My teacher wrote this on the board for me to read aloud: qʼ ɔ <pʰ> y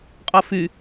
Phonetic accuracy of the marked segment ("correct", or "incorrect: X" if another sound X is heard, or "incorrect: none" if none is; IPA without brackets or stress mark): incorrect: f